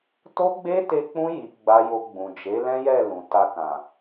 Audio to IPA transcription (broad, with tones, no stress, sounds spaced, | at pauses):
t o˦ ɡ͡b e˦ t e˧ k͡p ũ˧ j i˨ ɡ͡b a˧ j o˧ ɡ͡b ũ˨ d͡ʒ e˨˦ l ɛ̃˦ j ɛ˦˨ l ũ˨ t a˧ k ã˨